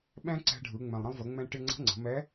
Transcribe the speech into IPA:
ɓɛ̃˥ǀɛ̤˧ɖʱɯ˩˧ ŋ͡mɛ̃˩lˠɾə̃˧lˠvə˩˧ ŋ͡mɛ̃˧ʈɪ˧ ŋ͡ǀə̤˧˥ŋ͡ǀə̤˩˧mɛ˧˥

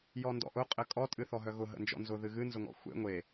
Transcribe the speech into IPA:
jɔndɔ̰ʔʊ qʼɘkʼɔ tʼɨθɔɦœɣʊ ɦə̰nd͡ʒɔ̰nzʊ ðɨɣɨ nzʊŋɔ̰xʷḛ ŋʷe

